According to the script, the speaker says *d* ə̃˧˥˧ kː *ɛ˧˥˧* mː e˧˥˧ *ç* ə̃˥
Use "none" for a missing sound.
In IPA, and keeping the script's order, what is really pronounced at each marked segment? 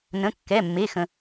n, ɛ˧˥˧, x

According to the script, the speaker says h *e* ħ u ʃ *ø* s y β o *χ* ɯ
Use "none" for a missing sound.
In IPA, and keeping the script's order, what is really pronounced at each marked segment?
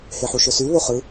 e, ø, χ

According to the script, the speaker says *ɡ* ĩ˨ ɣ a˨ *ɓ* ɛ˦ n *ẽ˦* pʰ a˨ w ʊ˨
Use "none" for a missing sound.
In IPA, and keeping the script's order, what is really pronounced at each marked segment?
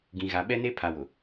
ɡ, ɓ, e˦

